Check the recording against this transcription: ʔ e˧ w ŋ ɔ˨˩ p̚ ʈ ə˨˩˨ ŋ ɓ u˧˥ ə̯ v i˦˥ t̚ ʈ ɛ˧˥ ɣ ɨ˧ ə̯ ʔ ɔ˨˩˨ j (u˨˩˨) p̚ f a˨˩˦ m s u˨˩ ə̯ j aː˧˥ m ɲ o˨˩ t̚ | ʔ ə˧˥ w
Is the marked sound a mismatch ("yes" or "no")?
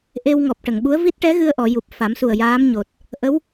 yes